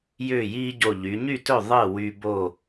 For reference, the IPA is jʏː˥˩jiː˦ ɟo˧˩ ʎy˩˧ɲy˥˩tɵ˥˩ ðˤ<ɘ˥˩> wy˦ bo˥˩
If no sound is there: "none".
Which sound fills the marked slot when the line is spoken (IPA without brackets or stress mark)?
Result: ɘ˥˩